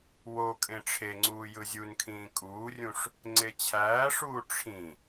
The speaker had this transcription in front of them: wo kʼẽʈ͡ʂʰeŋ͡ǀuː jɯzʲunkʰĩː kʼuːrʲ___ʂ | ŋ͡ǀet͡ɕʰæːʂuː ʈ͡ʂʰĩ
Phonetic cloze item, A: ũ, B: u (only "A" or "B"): A